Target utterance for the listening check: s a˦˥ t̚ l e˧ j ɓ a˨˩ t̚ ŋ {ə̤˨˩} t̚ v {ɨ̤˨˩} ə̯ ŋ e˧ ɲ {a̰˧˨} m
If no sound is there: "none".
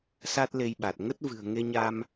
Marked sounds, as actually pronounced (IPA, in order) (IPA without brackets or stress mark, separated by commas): ə˦˥, ɨ̤˨˩, a˧